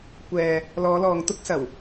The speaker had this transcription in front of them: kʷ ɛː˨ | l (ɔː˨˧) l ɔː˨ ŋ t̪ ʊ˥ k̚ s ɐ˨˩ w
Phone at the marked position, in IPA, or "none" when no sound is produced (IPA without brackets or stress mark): ɔː˨˧